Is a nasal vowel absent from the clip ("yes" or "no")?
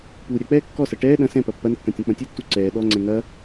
no